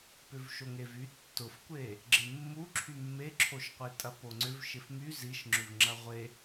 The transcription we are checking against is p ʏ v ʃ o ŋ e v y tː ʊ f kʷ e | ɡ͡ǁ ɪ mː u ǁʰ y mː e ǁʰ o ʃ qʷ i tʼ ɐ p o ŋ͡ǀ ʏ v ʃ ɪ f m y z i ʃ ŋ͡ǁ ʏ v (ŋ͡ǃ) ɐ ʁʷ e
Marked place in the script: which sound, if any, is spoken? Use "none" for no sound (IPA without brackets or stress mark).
ŋ͡ǁ